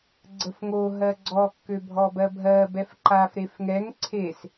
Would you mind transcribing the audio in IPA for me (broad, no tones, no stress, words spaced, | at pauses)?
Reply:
ɡ͡ǀəfŋo ɦɜɡ͡ǀɔ kːøbʱɔbɜbʱɜ bɛfǃaf ɾefŋɛŋ ǀʰes